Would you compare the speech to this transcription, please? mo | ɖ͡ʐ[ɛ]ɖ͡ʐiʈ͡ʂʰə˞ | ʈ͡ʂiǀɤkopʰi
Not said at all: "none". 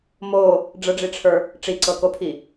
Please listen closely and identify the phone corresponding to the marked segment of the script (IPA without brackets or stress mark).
ə